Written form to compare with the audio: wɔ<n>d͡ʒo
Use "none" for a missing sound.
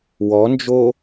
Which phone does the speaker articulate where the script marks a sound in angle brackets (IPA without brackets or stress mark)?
n